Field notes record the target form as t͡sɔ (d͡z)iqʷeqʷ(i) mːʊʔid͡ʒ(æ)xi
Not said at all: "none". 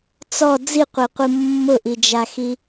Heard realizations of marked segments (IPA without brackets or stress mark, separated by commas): d͡z, i, a